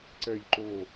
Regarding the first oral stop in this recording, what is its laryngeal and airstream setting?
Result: click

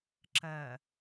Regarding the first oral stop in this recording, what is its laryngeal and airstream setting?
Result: click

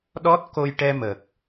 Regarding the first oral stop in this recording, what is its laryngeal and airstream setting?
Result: implosive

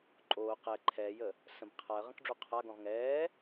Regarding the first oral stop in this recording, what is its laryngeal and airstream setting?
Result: click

